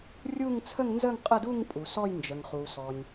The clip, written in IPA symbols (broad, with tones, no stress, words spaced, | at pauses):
rʲu˥˧ŋt͡sʰə˥˧ŋnzə˥˧ŋ qʼə˥˧du˥˧ŋ pʼu˨sɔ˥˧jnd͡ʒə˨ŋχu˨ sɔ˨nʲ